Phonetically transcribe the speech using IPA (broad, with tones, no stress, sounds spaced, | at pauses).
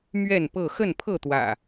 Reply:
m ɥ ɛ˥˨ n p ɤ˥˨ x ə˥˨ n pʰ ɤ˥˨ t̪ w ä̰˨˩